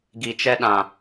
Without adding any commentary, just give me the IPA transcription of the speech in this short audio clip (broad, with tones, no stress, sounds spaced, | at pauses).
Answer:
ɡ i˨ t͡ʃ ɛ˦ ɗ ã˨